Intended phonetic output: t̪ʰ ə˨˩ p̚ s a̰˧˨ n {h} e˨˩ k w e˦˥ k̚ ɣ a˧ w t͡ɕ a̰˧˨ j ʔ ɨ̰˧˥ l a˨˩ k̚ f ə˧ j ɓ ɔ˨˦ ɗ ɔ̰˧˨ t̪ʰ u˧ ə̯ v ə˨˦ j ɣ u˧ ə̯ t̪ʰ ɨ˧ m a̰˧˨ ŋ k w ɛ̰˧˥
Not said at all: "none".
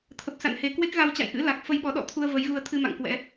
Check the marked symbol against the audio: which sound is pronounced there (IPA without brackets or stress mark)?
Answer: h